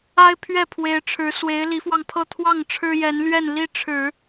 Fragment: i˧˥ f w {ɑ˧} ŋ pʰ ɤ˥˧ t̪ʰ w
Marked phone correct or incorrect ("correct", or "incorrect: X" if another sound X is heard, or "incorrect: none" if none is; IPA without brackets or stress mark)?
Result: correct